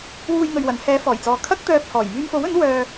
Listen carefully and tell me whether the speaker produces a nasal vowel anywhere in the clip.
no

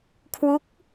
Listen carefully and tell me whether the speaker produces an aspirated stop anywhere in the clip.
yes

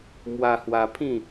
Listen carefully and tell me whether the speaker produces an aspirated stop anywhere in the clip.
yes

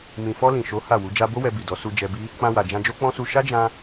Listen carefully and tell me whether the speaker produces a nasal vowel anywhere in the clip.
yes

